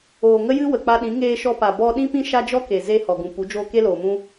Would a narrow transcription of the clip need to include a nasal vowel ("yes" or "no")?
yes